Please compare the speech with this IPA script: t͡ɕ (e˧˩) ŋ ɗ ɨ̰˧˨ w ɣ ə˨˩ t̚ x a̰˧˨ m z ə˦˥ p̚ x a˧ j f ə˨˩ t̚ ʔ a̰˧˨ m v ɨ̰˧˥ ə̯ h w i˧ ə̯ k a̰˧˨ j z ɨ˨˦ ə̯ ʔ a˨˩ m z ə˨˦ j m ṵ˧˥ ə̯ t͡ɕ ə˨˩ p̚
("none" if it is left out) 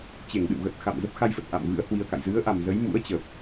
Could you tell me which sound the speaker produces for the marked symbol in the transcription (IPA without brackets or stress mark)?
e˧˩